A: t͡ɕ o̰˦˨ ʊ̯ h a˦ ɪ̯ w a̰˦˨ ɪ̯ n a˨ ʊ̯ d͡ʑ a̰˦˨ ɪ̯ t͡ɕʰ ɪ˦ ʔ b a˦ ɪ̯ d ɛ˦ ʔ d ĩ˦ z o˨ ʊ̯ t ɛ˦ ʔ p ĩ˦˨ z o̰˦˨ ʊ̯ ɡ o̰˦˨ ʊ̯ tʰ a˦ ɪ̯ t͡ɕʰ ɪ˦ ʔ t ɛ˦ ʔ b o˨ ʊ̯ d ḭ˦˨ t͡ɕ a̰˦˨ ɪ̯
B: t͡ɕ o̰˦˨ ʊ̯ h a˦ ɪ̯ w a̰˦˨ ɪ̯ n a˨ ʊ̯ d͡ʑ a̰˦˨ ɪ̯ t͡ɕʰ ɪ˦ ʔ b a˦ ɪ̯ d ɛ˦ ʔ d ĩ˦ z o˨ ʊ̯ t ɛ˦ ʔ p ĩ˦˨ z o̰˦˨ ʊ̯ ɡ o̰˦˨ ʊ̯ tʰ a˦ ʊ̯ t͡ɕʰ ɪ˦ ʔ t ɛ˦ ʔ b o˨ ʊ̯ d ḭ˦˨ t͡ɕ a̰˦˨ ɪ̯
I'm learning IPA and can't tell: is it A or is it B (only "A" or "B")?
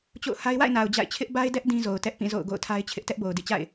A